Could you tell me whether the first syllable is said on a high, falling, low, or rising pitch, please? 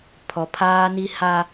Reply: low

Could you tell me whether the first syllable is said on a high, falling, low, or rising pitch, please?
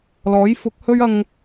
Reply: rising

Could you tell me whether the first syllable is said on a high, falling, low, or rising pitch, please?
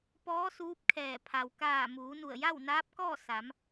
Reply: rising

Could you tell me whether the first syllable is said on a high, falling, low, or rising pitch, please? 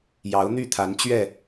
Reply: rising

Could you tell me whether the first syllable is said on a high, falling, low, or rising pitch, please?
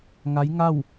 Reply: rising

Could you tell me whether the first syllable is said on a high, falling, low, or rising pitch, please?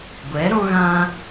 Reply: rising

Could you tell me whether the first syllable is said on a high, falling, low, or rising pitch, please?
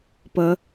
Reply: rising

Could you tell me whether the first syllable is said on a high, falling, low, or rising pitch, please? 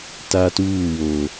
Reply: high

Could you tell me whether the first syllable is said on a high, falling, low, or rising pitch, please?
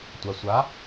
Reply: low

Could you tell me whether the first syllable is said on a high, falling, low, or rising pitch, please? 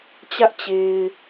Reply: high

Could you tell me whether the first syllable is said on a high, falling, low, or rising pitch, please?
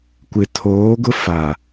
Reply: low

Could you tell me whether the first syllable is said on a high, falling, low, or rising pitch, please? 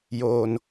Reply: low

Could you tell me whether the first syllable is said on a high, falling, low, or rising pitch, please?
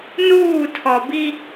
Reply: falling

